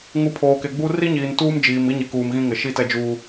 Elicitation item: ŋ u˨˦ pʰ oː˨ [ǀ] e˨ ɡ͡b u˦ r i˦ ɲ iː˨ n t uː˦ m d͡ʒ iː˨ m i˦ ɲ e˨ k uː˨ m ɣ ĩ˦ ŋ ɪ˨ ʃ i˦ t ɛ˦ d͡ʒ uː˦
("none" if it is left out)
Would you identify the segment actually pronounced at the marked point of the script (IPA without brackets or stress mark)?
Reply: k